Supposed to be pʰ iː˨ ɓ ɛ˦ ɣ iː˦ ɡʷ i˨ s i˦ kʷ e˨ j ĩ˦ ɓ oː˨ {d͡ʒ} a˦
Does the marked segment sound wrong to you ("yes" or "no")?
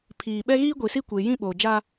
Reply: no